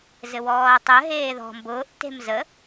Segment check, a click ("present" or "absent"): absent